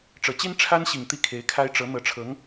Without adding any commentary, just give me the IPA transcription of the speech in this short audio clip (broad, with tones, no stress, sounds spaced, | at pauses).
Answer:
ʈ͡ʂ ɤ˨˩ t͡ɕ i˥ n ʈ͡ʂʰ a˥ n ɕ i˨˩ ŋ t̪ i˥˩ kʰ e˧˥ ɪ̯ kʰ a˥ ɪ̯ ʈ͡ʂ ɤ˧˥ n̪ ɤ˧˥ ʈ͡ʂʰ ɤ˧˥ ŋ